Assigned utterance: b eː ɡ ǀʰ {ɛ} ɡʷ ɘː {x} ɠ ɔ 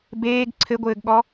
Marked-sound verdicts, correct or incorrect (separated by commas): incorrect, incorrect